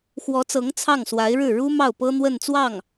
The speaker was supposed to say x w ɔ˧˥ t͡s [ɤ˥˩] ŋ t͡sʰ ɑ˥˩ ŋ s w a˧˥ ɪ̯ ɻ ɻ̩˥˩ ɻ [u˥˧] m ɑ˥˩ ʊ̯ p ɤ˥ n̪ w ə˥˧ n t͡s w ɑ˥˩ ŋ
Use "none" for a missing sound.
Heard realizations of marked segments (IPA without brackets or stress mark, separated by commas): ɤ˧˥, u˥